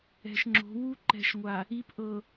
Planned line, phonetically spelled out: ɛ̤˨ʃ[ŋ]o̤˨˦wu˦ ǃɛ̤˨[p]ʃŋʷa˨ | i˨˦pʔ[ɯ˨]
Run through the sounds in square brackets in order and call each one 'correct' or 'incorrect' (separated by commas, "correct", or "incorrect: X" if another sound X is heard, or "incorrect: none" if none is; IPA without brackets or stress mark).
incorrect: ŋ͡ǁ, incorrect: none, incorrect: ɤ˨